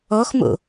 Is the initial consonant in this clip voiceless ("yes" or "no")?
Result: yes